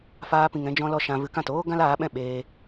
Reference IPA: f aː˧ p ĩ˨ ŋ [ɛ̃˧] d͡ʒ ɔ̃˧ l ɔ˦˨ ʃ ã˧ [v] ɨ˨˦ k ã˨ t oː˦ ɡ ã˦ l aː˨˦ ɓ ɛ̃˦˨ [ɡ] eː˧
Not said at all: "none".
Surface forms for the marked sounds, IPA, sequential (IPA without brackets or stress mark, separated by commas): ɛ̃˧, v, ɓ